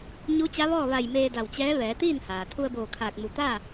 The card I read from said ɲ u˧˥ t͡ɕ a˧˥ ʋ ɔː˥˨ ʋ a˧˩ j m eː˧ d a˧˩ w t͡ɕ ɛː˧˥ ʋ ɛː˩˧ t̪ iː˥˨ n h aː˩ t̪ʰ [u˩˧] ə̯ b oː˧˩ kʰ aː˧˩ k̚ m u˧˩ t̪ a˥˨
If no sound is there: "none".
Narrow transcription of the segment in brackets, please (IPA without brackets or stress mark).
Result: u˧